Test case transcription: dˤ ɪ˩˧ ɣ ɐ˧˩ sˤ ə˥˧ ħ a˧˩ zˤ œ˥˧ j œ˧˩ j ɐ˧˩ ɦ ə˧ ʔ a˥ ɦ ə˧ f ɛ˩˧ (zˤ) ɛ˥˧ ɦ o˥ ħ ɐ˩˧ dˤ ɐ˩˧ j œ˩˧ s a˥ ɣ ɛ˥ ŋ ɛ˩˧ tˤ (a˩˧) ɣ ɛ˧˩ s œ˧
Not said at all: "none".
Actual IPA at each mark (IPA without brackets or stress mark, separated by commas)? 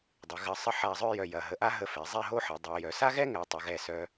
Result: zˤ, ɐ˩˧